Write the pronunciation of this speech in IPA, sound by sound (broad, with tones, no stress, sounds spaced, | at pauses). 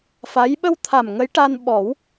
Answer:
f a˧˥ j ɓ ə˧ w t̪ʰ a˨˩ m ŋ ə˧˥ j ʈ a˧ n ɓ ɔ˨˩˦ w